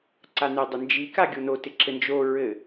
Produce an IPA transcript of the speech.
ǀ a n ɪ dˤ ɪ n d͡ʒ i k a ɡʲ o n o t ɪ ǁ ɘ n d͡ʒ o ɹ ɘ

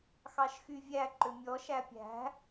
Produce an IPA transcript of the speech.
x ɑ ʃ x y vʲ æ ǃ ø mʲ ɔ ʃ æ pʲ æ̤

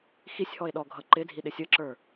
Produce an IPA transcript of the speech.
x i sʲ h ɔ e̯ ɗ ɔ ɡʱ ʌ ǃ ɪ dʱ i ɗ ɪ sʲ ə ǁ ə˞

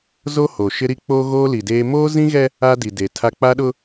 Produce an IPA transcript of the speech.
z o˦ h o˨ ʃ ɪ˦ ɾ i˦ k͡p o˦ ɣ oː˦ l i˨ d eː˦ m oː˦ z ĩ˦ ɣ ɛ˦ | a˦ d i˨ d e˨ tʰ a˦ k͡p a˦ ɗ ʊ˦

